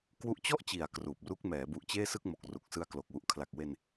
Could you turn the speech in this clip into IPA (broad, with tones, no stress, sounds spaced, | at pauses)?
k w u˦˥ ʔ t͡ɕ ɔ˥˩ ʔ t͡ɕ i˩˦ a̯ k r uː˨˩ p̚ r u˦˥ k̚ m ɛː˩˦ b u˨˩ ʔ t͡ɕ eː˥˩ s ɯ˥˩ k̚ m o˨˩ k̚ r u˨˩ k̚ s ɯ˧ a̯ k l o˨˩ k̚ w u˨˩ ʔ kʰ l a˨˩ k̚ w e˧ n